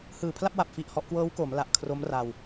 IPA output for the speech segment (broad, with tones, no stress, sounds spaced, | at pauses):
h ɯː˨˩ pʰ l a˥˩ p̚ w a˨˩ p̚ f i˥˩ ʔ h ɔ˦˥ ʔ k w ɤː˦˥ w k o˩˦ m l a˨˩ ʔ kʰ r o˦˥ m r a˧ w